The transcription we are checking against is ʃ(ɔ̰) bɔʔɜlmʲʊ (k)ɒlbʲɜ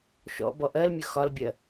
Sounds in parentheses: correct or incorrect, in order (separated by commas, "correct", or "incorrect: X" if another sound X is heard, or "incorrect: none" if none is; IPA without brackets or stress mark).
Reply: correct, incorrect: x